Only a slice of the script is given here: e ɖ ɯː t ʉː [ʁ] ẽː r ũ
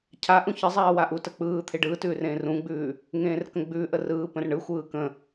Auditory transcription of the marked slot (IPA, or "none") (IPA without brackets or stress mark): r